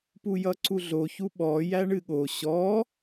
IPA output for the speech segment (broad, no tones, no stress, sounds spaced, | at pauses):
p u j ʌ ǀ u ɮ o ç u ɓ ɔ j æ ɳ ɨ ɠ o ɕ ɔ